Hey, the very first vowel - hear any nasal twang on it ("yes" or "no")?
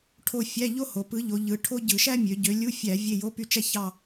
no